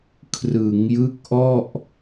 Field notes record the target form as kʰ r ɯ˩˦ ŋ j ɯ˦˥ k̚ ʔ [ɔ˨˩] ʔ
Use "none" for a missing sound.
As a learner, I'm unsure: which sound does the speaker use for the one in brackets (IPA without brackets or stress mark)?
ɔ˥˩